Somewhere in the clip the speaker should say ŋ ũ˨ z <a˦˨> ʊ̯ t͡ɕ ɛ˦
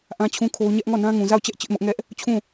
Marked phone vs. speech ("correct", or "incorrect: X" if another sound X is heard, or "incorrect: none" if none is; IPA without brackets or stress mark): correct